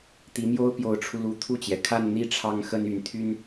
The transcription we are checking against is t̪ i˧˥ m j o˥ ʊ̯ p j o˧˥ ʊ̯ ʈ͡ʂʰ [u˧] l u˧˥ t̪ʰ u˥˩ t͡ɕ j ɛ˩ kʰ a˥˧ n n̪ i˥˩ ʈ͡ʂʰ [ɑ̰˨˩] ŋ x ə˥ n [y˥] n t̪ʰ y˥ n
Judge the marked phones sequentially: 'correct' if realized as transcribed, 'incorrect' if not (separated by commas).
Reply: correct, incorrect, incorrect